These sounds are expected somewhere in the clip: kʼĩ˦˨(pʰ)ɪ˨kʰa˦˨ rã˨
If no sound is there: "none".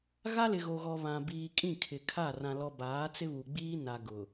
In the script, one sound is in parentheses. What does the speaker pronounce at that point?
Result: kʰ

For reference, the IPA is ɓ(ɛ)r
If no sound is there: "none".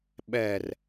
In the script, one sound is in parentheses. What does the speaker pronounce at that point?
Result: ɛ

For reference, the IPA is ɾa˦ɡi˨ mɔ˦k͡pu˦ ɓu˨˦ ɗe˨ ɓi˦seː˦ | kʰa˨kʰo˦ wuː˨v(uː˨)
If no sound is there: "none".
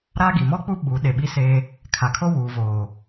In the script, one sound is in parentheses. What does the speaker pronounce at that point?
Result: oː˨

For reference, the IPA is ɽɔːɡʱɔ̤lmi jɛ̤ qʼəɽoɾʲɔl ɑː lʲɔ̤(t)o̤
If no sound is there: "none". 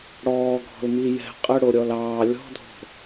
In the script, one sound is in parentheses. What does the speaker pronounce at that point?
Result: dʱ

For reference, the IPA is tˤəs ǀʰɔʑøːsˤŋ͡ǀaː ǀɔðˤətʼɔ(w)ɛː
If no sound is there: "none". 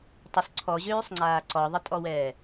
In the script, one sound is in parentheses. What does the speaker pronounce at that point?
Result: w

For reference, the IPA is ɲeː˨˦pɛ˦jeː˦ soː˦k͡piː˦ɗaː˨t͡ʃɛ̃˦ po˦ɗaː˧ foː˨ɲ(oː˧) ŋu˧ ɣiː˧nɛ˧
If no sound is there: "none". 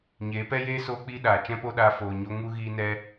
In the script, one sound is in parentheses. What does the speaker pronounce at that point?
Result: o˧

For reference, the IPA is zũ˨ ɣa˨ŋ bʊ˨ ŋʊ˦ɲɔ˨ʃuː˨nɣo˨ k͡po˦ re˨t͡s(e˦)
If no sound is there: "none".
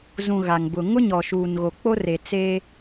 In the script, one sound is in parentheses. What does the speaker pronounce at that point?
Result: e˦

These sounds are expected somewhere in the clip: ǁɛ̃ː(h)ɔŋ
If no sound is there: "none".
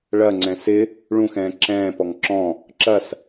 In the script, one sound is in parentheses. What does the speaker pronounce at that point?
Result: p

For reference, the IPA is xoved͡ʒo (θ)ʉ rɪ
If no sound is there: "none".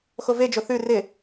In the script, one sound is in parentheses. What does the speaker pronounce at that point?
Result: θ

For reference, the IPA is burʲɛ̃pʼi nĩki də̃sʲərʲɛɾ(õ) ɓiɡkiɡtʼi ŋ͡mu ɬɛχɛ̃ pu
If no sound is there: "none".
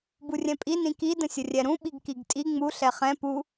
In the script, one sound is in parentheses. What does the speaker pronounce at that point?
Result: ũ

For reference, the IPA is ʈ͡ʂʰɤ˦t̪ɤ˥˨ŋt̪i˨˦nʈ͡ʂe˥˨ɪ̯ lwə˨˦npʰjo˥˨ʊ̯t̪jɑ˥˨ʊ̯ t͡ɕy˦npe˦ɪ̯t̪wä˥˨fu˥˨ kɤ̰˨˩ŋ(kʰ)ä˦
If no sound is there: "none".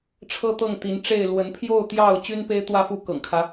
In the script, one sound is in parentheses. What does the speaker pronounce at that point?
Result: kʰ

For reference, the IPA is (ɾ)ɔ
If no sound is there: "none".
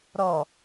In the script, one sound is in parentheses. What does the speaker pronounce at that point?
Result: ɾ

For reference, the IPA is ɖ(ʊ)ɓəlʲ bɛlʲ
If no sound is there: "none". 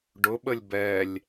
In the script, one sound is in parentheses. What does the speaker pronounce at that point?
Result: ʊ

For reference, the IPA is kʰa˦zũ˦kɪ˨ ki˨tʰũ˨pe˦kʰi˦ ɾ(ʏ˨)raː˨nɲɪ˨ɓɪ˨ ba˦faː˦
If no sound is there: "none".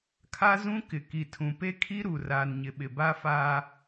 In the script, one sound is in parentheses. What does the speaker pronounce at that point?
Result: u˨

